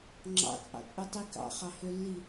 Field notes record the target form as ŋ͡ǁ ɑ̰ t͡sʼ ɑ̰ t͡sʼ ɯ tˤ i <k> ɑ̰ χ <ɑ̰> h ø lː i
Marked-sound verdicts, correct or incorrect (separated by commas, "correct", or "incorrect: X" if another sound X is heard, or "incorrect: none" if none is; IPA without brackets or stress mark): correct, incorrect: ɑ